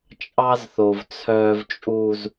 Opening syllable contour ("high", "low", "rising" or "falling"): high